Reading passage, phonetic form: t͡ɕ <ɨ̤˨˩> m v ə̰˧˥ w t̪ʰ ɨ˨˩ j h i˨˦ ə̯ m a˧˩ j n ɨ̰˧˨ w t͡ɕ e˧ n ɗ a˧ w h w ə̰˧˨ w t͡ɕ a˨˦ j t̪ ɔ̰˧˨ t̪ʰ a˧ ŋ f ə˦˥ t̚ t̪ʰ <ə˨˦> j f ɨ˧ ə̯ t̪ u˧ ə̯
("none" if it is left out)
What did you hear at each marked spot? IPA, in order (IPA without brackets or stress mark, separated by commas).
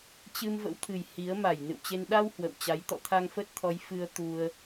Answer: ɨ˧, ɔ˨˦